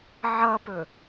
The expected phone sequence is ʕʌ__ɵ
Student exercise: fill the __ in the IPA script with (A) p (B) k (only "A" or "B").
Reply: A